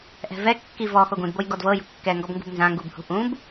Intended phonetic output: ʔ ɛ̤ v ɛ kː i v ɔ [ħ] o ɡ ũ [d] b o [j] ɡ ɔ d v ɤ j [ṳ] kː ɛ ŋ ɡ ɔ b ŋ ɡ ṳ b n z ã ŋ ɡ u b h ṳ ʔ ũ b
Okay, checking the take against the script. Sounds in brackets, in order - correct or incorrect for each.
incorrect: x, correct, correct, correct

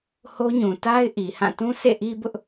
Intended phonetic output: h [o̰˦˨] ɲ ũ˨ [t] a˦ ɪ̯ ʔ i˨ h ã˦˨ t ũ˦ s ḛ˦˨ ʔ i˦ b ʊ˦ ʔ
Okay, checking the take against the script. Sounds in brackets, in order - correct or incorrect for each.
incorrect: o˦, correct

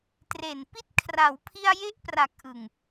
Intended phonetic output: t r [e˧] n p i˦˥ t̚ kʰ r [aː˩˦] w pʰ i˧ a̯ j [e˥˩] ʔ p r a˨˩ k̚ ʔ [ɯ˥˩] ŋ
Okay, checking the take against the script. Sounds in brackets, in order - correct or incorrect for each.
incorrect: e˨˩, incorrect: a˩˦, correct, incorrect: ɯ˨˩

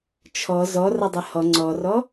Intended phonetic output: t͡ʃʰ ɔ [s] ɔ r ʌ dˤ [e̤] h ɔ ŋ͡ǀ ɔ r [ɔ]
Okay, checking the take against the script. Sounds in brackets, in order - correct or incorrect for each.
incorrect: z, incorrect: e, correct

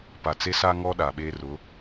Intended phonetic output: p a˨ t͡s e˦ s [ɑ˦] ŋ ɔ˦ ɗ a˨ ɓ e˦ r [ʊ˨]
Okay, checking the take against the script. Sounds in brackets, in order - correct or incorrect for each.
incorrect: a˦, incorrect: ʊ˨˦

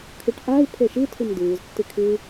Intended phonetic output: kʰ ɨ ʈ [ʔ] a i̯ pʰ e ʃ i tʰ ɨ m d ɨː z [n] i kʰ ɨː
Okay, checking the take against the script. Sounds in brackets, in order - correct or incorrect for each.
correct, incorrect: tː

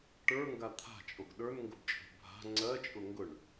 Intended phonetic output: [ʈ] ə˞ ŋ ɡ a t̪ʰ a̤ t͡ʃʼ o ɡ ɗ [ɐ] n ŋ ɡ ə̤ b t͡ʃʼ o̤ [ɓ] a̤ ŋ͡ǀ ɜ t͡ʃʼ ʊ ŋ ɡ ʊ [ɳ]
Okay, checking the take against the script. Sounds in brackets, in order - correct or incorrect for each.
correct, incorrect: ə˞, incorrect: bʱ, correct

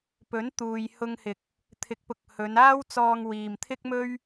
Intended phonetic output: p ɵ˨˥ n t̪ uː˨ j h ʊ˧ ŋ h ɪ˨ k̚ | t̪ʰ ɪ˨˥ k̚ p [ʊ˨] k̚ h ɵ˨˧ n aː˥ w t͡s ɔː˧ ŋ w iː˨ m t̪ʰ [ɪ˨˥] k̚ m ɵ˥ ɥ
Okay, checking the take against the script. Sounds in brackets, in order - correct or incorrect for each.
correct, incorrect: ɪ˥

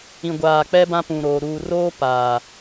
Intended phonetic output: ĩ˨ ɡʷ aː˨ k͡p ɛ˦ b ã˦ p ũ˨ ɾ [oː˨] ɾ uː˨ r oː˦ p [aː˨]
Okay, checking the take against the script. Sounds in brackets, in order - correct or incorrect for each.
correct, correct

